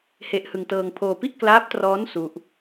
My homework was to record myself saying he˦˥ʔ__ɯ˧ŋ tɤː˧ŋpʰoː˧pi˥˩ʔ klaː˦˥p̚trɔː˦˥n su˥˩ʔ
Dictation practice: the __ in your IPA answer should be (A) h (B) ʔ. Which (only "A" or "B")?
A